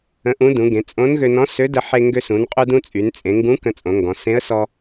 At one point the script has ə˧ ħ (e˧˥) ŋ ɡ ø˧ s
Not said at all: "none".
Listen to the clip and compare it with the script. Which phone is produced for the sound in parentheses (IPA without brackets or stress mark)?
e˧